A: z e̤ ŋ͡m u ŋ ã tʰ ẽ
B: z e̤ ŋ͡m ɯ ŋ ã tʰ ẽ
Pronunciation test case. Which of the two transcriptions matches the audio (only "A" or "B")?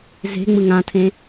B